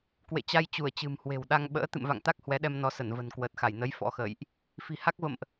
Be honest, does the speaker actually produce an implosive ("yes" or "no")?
yes